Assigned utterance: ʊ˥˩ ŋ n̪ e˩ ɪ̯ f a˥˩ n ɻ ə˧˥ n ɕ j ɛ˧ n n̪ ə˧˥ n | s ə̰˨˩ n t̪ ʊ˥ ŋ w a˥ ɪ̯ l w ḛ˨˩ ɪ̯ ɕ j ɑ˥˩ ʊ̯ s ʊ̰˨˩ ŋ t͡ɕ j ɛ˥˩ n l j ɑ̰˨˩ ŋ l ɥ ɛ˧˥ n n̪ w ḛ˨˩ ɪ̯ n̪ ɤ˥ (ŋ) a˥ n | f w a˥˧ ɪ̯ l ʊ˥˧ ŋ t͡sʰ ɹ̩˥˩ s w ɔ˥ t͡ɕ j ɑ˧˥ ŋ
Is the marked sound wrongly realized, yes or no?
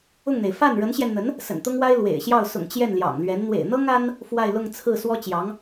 no